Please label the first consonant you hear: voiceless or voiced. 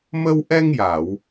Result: voiced